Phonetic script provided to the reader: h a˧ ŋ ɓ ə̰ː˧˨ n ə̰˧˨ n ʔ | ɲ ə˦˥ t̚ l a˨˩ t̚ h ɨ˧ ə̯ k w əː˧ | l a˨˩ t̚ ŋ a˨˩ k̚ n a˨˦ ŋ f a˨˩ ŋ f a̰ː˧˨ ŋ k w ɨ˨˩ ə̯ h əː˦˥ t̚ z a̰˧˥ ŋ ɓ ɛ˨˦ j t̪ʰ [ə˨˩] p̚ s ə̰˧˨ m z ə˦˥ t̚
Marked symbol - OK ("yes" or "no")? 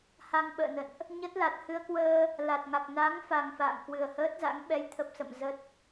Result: yes